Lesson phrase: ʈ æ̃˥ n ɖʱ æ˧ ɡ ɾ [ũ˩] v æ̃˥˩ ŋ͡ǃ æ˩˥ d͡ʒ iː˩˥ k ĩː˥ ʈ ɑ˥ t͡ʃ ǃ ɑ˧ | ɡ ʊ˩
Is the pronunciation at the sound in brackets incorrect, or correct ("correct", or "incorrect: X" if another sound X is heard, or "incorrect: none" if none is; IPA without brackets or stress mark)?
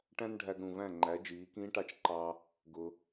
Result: correct